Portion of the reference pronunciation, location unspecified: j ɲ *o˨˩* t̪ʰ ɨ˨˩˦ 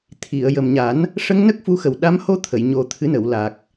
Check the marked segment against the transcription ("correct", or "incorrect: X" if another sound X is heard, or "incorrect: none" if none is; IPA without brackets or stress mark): correct